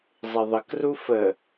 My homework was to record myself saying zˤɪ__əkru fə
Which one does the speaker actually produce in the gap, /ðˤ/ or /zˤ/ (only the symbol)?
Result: ðˤ